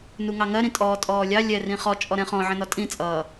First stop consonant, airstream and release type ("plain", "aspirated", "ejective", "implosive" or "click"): ejective